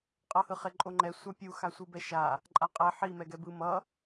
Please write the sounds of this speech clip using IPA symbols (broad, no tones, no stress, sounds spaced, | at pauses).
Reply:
qʼ ʌ h ɯ χ e ǃʼ o ŋ͡ǃ ɛ sʷ a pʲ u x a sʷ ɯ b ɛ ʃ a | ǃʼ a qʼ ɛ ħ i m ɛ ɡ ɛ b ɯ m ʌ